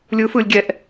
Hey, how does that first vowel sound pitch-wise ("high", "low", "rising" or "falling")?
rising